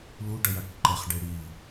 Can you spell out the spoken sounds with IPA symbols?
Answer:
luɖʌjaʈ ǃɛχɖe ɽi

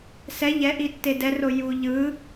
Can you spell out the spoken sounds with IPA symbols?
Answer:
sɛ ʎɛʔitːe dɛro ju ʎɯ

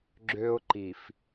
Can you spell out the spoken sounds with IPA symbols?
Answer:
ɡ͡ǁø˦ʊ̯ǃi˨f

